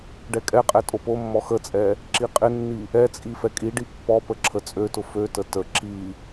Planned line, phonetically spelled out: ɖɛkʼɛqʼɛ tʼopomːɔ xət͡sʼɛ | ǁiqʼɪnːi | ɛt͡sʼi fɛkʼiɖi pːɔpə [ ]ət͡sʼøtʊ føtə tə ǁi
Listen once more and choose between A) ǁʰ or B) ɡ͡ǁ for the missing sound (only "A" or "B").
A